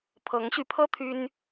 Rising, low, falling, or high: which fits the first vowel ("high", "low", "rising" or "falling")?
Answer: rising